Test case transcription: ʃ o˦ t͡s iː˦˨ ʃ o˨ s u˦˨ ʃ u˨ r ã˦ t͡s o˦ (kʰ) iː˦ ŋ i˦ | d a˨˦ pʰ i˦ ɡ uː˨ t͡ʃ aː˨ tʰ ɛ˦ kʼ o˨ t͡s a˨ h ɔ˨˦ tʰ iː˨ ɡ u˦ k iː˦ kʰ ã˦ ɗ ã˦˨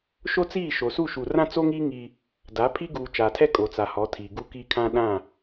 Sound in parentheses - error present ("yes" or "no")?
yes